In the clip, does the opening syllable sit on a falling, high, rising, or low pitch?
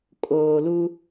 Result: low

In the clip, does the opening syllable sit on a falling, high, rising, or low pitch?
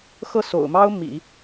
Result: falling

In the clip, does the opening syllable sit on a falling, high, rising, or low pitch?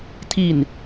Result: low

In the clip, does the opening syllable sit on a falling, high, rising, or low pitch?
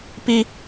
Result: high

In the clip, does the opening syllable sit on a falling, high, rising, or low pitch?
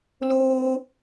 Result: high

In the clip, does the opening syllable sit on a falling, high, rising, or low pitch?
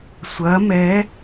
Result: rising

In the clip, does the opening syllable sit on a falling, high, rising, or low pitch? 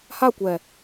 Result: falling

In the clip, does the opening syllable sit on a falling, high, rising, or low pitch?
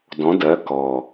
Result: rising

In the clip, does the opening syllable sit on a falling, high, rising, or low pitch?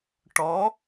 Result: rising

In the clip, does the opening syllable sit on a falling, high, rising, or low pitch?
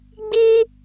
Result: high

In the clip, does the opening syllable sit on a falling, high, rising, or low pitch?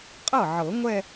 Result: falling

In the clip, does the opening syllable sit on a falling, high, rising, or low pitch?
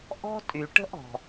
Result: high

